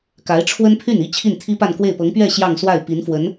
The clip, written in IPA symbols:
k a˧˥ ɪ̯ ʈ͡ʂʰ w ə˥ n pʰ y˥˩ n i˥ t͡ɕʰ i˥˩ n t̪ʰ i˥ p a˥˧ n k w e˥˩ ɪ̯ p ɤ˧˥ ŋ p ɥ ɛ˥˧ ɕ j ɑ˥˧ ŋ s w a˥˩ ɪ̯ p i˧˥ n f w ə˧˥ n

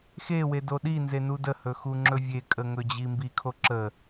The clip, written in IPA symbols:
x e w e d o ɗ i n z e n u d ə h ɵ x u ŋ͡ǁ ɵ vʲ e kʼ ə ŋ ɵ d͡ʑ i m b i kʰ o ǁ ə

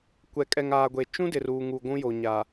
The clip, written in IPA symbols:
kʷ ɛ˨ kʼ ɛ˨ ŋ aː˨ ɡʷ e˨ t͡ʃ ũ˦ d ɪ˨ r uː˨ ŋ u˨ ɡʷ ũ˦ j o˨ ɲ a˨

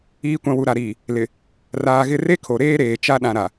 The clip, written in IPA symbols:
iː˨ kʷ ã˨ w u˨ ɾ a˨ ɾ iː˨ | l ɪ˨ | r aː˨ ɣ ɪ˦˨ r e˦ kʰ o˨ ɾ eː˦ ɾ eː˨ t͡ʃ a˦ ɗ ã˨ ɾ a˨

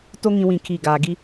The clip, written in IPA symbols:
t o˦ ŋ ĩ˦ w ĩ˦˨ kʰ i˦˨ ɡ aː˨ ɡ i˦

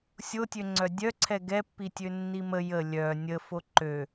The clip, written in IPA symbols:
sʲ o tʲ ø ŋ͡ǀ œ dʲ œ ǀʰ ɛ ɡ ɛ pː i tʲ ø nː i m ə j ə lʲ œ nʲ ə f o ǃ ø

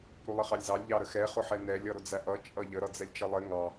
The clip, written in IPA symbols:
ɾ u lˠ ɪ χ ɑ lʲ z ɑ lʲ ʎ ɑ ɾ ə x ɛ χ ʊ ħ ɛ n ɛ lʲ ʌ ɾ ʊ d͡z æ ʔ ʌ t͡ʃʼ ʌ ʎ ə ɾ ʌ d͡z ɛ lʲ t͡ʃ ə lˠ ɪ ŋ ɑ

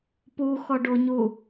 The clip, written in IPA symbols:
p u x ɔ ɖ o ɲ u

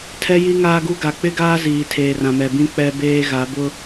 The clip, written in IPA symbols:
tʰ ɛ˦ j i˦ ŋ aː˦ ɡ u˦ ɡ a˨ k͡p ɪ˦ ɡ aː˦ z iː˨ tʰ eː˨ r ã˨ m ɛ˨ b ĩ˦ k͡p ɛ˦ b eː˦ ɣ a˨˦ b ʊ˦

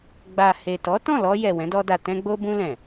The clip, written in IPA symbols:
ɡ͡b a˨ h e˨ t ɔ˨˦ t ɔ̃˦˨ l ɔ˧ j ɛ˨ w ɛ̃˨˦ d ɔ˧ d a˨ t ɛ̃˧ ɡ͡b o˧ b ũ˧ l ɛ̃˨

